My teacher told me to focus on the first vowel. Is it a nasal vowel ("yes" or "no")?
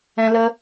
yes